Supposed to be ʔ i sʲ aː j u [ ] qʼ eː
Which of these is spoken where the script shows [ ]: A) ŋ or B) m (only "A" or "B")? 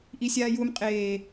B